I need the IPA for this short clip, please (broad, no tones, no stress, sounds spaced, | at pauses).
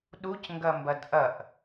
ɗ u c ŋ ɡ ɐ m b ɐ d ʔ ɐ ʔ